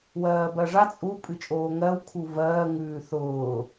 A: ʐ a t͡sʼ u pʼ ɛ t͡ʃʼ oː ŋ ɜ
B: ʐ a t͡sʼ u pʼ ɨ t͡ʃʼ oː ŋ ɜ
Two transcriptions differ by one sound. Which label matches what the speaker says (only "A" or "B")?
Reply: B